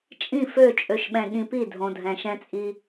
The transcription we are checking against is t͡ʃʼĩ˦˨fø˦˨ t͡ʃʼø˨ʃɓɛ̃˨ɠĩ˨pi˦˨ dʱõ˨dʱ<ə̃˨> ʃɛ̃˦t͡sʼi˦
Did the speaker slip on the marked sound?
yes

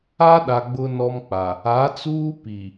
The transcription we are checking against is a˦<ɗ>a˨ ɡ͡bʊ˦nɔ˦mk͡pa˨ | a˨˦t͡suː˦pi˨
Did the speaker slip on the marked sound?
no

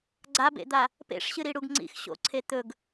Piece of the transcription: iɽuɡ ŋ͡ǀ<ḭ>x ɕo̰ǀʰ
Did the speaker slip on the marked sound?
no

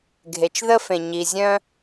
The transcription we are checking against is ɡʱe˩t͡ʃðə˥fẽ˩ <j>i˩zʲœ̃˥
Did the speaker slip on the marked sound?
yes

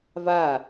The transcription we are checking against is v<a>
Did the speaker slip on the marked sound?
no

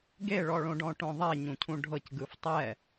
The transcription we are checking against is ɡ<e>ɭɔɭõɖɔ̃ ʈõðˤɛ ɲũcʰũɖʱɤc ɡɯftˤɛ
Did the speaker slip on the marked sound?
no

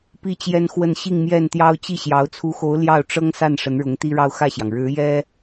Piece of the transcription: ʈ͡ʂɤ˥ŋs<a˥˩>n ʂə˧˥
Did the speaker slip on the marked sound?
no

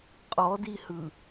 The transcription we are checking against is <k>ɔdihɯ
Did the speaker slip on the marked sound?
yes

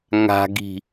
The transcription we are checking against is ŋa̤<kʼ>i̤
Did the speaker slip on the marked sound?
yes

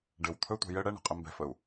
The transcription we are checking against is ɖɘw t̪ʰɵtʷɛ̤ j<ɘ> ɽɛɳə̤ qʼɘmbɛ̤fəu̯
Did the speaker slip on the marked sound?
no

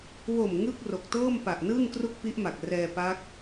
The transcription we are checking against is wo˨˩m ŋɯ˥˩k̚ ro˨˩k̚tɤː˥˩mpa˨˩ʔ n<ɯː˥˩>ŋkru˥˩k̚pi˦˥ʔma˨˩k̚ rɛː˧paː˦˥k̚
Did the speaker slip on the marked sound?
no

